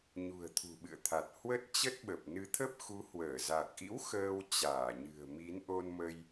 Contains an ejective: no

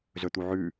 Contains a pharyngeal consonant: yes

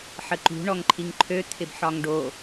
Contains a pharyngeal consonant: yes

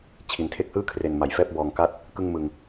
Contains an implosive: no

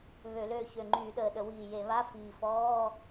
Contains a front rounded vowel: yes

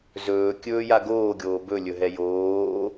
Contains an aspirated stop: no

